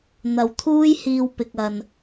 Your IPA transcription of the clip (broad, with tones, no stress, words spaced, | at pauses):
n̪ɐ˨wt̪ʰuː˥jhiː˧w pɪ˨k̚ɐ˨n